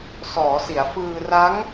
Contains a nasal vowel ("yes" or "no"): no